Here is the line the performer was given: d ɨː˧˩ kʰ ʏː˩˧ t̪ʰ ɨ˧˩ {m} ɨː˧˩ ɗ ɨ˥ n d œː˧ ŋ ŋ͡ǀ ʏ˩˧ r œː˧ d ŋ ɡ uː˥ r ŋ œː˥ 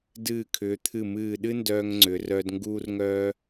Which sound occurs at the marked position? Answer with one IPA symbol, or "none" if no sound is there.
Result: m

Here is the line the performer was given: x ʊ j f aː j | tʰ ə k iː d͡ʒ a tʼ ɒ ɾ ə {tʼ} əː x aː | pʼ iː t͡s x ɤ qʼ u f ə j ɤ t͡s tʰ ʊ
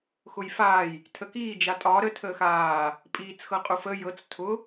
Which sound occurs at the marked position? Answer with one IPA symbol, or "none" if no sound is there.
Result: tʰ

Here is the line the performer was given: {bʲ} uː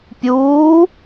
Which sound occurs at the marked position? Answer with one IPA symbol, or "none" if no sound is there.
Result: pʲ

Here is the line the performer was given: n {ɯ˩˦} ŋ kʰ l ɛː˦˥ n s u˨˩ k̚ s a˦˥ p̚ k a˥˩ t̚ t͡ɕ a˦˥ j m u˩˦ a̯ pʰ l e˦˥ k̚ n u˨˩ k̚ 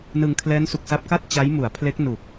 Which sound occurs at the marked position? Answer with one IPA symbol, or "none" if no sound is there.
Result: ɯ˧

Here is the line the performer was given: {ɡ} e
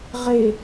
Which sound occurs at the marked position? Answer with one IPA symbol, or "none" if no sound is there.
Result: ʁ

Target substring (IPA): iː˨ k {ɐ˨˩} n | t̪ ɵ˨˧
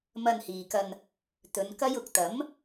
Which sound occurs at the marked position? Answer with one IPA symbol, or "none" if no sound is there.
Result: ɐ˧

